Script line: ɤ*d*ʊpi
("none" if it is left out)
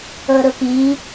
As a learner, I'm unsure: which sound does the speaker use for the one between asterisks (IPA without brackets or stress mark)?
ɾ